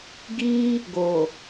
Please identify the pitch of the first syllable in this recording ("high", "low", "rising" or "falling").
high